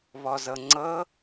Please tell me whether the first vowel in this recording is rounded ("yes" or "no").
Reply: yes